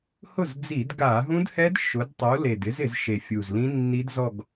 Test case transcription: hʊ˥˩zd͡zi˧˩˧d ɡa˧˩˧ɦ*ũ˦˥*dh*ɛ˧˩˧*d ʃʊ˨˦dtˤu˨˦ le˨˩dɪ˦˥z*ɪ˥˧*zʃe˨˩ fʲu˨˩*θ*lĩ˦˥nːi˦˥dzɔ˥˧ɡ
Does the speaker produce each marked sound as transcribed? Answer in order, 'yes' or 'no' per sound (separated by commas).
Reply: yes, no, no, no